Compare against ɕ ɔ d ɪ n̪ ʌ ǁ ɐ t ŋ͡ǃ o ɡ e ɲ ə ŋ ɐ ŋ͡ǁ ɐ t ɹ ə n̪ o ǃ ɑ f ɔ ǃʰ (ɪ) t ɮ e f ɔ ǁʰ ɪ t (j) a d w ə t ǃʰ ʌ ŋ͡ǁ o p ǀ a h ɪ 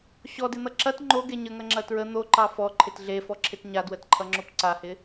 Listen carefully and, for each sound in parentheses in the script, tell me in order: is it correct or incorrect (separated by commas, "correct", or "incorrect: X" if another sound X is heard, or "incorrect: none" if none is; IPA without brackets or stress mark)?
correct, incorrect: ɲ